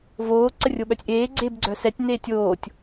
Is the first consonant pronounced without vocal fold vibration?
no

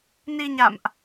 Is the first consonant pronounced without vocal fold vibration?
no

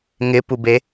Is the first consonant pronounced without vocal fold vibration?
no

